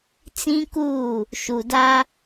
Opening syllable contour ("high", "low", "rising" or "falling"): high